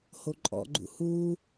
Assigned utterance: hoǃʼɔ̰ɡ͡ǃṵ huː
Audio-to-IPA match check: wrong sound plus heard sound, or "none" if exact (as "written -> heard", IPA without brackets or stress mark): none